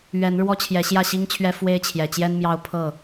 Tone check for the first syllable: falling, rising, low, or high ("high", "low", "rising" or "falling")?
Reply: rising